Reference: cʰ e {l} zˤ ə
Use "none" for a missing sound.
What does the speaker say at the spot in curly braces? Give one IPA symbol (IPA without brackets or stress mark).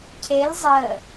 l